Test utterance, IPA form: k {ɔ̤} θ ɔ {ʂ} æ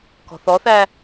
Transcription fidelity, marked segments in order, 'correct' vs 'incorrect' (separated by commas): correct, incorrect